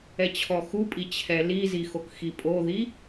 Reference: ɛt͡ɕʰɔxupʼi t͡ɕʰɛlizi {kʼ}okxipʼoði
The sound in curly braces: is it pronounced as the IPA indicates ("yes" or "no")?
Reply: no